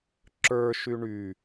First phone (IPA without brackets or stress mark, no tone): ǁ